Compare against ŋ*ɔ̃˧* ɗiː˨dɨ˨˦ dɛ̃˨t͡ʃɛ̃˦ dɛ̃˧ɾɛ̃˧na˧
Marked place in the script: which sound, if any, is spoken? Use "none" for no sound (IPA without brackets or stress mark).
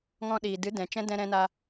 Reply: ɔ̃˧